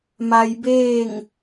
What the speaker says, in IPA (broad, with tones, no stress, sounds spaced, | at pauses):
m a˧ j b eː˥˨ ŋ